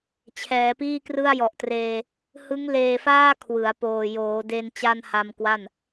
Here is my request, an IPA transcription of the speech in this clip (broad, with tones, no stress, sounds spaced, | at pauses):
t͡ɕʰ ɛː˩˦ p iː˥˩ k r ɯ˥˩ a̯ j ɔ˨˩ ʔ t r eː˧ | h ɯ˦˥ ŋ l eː˧ f aː˥˩ kʰ w ɯ˩˦ a̯ p oː˨˩ j oː˩˦ d e˧ n t͡ɕ a˥˩ n h a˧ m k w a˥˩ n